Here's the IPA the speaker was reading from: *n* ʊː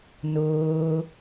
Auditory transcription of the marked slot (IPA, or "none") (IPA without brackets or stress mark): n